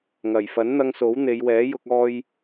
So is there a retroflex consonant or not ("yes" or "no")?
no